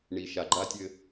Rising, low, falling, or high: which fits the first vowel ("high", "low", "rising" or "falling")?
low